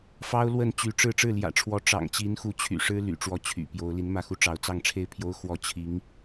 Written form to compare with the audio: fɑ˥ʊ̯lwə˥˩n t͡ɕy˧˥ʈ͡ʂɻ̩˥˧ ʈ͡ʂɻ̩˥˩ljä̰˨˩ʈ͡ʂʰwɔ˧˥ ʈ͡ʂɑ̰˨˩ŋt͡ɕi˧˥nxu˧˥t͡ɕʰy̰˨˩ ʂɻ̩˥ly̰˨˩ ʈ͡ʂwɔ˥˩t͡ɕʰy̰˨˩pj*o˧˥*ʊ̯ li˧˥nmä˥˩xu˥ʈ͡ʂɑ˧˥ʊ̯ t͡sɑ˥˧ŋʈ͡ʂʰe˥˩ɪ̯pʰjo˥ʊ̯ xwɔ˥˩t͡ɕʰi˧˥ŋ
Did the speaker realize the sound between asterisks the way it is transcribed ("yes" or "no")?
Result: yes